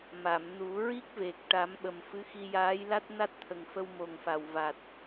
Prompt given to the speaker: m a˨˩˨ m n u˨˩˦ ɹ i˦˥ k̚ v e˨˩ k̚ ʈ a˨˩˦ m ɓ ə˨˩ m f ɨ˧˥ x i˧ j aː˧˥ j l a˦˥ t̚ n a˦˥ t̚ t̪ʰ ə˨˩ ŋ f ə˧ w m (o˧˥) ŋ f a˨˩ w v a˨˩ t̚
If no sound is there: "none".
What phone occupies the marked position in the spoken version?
o˨˩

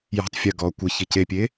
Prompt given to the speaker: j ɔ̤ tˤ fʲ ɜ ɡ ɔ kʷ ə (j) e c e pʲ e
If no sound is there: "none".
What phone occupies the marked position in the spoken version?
ç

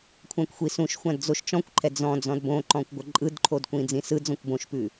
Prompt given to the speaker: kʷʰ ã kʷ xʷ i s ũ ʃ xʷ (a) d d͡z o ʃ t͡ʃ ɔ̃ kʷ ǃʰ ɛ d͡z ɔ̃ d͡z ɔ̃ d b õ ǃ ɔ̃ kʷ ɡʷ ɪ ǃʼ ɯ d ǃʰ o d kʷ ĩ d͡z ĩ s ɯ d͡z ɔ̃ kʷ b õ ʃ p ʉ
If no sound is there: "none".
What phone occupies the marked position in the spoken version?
ã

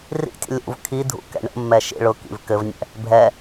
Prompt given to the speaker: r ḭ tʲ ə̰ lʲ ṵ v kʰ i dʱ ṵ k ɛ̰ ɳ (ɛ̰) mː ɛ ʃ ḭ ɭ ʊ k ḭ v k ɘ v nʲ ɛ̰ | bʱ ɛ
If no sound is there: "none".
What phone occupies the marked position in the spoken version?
ə̰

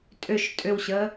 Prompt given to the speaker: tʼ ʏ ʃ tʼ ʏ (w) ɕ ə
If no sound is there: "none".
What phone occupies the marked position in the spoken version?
w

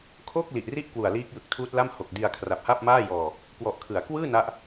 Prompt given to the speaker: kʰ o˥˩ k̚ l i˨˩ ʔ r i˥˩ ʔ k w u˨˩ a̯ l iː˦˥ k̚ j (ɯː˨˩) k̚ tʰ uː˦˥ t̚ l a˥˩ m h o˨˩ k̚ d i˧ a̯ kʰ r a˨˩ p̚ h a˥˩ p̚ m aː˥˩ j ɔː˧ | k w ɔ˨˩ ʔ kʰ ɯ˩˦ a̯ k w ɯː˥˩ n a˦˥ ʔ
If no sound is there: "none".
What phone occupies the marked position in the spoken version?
ɯ˨˩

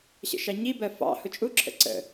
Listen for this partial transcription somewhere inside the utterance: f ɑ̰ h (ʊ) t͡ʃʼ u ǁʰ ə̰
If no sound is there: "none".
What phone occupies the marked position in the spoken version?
ʊ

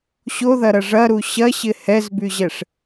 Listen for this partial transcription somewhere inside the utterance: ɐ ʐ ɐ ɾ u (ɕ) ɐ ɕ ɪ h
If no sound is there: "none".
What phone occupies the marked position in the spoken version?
ɕ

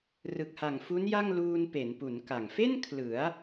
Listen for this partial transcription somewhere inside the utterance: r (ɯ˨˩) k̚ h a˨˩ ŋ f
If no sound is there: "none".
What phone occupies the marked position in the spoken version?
ɯ˨˩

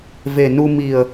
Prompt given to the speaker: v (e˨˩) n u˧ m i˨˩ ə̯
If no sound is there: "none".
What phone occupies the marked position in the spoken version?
e˨˩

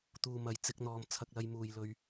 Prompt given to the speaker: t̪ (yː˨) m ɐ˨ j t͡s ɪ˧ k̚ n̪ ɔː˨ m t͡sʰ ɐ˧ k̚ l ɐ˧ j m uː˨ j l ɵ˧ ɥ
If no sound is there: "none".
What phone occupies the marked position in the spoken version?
uː˨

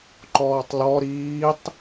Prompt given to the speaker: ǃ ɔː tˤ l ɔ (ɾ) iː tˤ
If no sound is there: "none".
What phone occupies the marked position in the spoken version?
ɾ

